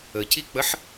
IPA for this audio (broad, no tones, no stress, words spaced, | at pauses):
əcik͡pəħ